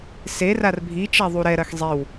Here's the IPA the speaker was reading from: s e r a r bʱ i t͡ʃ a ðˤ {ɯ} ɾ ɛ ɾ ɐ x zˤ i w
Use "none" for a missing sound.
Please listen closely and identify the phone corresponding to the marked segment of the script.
u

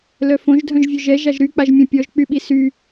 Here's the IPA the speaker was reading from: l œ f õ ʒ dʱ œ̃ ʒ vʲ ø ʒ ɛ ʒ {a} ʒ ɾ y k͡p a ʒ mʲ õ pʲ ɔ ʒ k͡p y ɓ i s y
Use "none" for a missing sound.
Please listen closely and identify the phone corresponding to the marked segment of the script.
a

